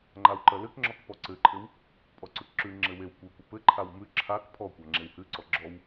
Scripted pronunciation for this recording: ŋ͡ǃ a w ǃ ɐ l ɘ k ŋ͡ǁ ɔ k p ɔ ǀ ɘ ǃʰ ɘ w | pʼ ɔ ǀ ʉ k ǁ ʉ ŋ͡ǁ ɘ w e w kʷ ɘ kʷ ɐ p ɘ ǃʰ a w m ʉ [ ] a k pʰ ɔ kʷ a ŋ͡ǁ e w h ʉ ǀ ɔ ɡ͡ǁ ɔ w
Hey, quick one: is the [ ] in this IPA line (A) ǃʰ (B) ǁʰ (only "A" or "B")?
B